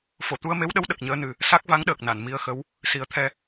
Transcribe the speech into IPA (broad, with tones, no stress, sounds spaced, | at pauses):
f o˨˩˨ t̪ u˧ ə̯ m e˧˥ w ɗ ə˧˥ w ɗ ə˨˩ k̚ ɲ əː˧˥ n ɨ˨˩ | s a˦˥ k̚ v a˧˥ ŋ ɗ əː˨˩ k̚ n a˨˩˨ n m i˧ ə̯ x ə˧˥ w | s i˨˩˦ ə̯ t̪ʰ ɛ˧